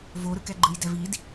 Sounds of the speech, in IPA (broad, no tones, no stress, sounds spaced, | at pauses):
v o ɾ ɯ k ɛ ɡ͡ǃ ɯ j d ɛ v i d